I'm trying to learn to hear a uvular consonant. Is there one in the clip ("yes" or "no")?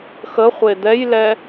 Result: yes